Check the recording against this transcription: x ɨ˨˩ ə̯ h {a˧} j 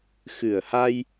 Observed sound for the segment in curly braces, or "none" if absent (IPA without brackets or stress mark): a˧